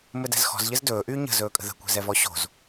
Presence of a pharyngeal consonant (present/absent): absent